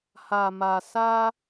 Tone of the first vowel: low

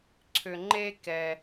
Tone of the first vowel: low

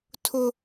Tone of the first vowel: high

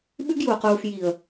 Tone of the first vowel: high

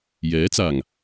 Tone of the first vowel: rising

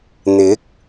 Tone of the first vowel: rising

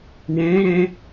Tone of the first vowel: rising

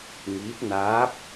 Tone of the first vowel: rising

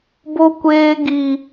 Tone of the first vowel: high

